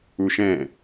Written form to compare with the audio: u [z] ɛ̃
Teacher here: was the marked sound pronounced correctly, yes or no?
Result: no